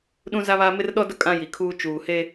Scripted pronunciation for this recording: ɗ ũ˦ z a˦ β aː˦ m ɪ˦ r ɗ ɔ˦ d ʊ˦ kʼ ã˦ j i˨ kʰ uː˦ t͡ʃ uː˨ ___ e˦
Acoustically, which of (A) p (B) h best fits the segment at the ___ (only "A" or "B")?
B